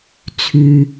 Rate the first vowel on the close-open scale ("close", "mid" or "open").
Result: close